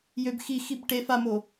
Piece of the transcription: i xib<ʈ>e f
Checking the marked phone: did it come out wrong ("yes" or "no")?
no